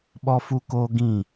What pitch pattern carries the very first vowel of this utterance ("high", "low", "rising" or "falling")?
high